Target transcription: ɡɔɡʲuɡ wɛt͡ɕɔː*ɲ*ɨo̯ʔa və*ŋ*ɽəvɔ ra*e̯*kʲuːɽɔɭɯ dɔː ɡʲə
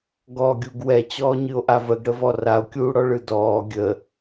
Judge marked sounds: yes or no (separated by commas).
yes, no, no